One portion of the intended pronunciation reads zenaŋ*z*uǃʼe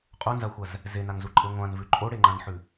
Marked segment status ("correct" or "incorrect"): correct